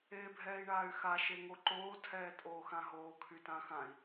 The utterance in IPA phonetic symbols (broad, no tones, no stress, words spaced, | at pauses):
eːbʱɛːi̯ɳaːy̯xa ʃeŋoǃoː tʰɛːtʼoːxãɦoː kʰytãxãi̯